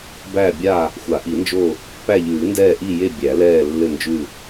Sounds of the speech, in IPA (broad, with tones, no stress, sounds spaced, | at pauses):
b æ˦˨ bʲ a˦˨ | xʷ a˨˩˦ ʔ i˨˩˦ n d͡ʒ o˦˨ | p æ˦˨ ʎ ʉː˨˩˦ n d ɛː˦˨ ʔ i˦˨ j e˦˨ bʲ æ˨˩˦ l ɛː˦˨ lː ɘ˦˨ n d͡ʒ ʉ˦˨